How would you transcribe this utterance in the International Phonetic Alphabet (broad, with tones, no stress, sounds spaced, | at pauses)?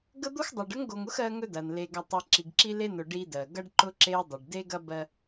ɡ ə˦ d̪ o˦ x dˤ o˨ ɖ ə˦ ŋ ɡ o˨ ŋ ʊ˦ x ɜ˦ ŋ ɵ˦ d ɐ˨ n l e˨ ɡ ɐ˨ tˤ i˨ ǁ i˨ ɡ ǁ i˦ l e˦ n ʊ˨ ɖ i˦ d ɜ˨ ɡ ɐ˦ ɖ ǃ ʊ˦ ǁ e˦ ʊ̯ dˤ ə˨ ɖ d e˦ ɡ ɐ˦ b ɜ˦